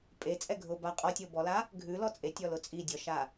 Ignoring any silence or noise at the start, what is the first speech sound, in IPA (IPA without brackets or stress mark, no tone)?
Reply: pʼ